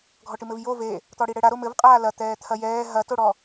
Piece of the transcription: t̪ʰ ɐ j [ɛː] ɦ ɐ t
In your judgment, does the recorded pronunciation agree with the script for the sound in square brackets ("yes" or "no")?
yes